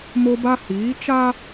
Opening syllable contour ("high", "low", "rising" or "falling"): high